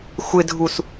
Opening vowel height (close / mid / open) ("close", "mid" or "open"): close